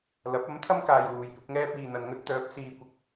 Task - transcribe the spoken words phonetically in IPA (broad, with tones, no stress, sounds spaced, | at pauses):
l ɐ˨˥ p̚ ɐ˨˥ m t̪ʰ ɐ˥ m k aː˨ j w uː˨ j p ɪ˨˥ k̚ ŋ ɛː˥ p̚ iː˨ n̪ ɐ˨ n ŋ ɵ˥ t̚ t̪ œː˨˥ p̚ s iː˧ kʷ ɪ˧ k̚